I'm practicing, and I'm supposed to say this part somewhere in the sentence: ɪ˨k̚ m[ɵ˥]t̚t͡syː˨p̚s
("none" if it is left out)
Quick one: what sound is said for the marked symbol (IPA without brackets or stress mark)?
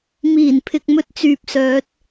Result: ɵ˥